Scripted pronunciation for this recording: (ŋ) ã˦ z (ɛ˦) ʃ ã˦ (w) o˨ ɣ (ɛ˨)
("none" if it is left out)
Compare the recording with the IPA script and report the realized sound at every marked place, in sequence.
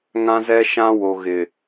ŋ, ɛ˦, w, ɪ˨

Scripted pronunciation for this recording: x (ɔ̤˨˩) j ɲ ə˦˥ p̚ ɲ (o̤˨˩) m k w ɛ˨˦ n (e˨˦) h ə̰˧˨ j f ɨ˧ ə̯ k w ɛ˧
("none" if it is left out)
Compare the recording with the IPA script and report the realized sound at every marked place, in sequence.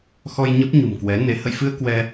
ɔ˧, ṳ˨˩, e˨˦

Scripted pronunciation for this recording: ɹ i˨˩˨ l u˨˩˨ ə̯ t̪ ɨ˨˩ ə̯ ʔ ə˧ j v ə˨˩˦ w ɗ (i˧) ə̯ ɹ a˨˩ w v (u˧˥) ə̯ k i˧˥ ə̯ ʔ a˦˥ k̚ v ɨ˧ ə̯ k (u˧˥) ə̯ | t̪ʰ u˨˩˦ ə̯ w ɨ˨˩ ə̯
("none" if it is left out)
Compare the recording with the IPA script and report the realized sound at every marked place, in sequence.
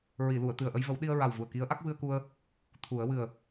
i˧, u˨˩, u˧

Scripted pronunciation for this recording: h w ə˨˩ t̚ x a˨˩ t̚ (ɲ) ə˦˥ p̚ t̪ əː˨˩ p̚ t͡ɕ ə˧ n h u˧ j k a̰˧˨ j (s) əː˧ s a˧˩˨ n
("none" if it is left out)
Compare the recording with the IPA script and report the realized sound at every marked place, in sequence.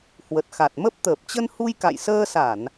m, s

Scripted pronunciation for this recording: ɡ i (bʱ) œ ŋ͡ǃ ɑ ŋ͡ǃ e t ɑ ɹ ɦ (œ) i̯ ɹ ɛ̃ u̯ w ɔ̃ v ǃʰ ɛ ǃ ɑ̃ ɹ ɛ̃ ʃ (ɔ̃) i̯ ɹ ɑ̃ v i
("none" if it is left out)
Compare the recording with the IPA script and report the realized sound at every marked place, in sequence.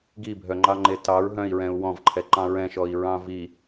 bʱ, œ̃, ɔ

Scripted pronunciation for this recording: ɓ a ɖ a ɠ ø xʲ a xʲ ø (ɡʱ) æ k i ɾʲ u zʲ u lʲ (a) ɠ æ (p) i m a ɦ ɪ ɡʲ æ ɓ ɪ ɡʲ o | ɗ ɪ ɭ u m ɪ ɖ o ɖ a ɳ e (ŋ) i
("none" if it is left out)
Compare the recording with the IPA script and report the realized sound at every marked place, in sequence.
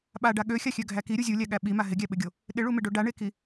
ɡʱ, æ, ɓ, k

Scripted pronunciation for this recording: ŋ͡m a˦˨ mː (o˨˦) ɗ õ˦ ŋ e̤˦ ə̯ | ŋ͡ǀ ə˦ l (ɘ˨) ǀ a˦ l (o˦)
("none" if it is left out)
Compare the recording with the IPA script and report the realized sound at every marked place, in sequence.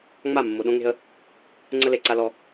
o˨, e˨, ɔ˦

